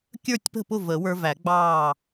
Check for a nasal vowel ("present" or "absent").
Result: absent